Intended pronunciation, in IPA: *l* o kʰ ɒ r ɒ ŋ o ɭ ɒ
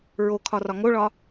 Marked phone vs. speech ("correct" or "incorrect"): incorrect